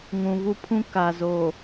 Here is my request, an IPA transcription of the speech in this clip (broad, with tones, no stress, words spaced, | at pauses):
ŋũ˨vu˦pʰũ˦ ka˨zo˨